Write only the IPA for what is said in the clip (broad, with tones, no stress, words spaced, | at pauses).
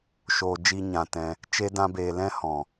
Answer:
ʃoː˧d͡ʒi˦ɲã˧tɛ̃˧ | t͡ʃe˦dã˦beː˧ lɛ̃˦hɔ̃˨